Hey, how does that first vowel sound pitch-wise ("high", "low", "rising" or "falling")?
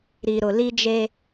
low